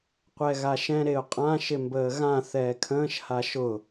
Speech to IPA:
qʷɛɣaʃɛ̃ ɾeʊ̯qʼã ʃɪmbəːɣã θɛːkʰə̃ːʃ haʃʊ

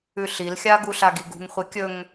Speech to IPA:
ʉɬilxʲa ɡuɬaɡiɡṳŋ χʷikʲɵŋ

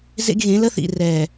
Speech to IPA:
zḛ˦ɡɣẽ˨˦lə˦θḭ˨ rɛ˨

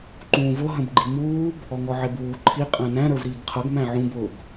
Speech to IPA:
ǃũːvʊ ɦə̃bɡ͡ǃimuːb | ɔŋɔʕɪbuː ǃʰi qʼæ̃næ̃ ɾə˞vɾiːɡqʰʌɡ mæ̃ʕũb ʊb

